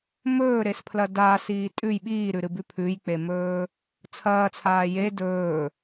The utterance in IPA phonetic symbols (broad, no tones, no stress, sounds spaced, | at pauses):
m ɵː ɾ e s pʰ l ɐ d aː s iː tʼ ʉ j ɓ iː ɾ ʉ ɾ ɨ b ʉ pʰ ʉ j k͡p e m ɵː | t͡sʰ ɐː t͡sʰ aː j e d ɵː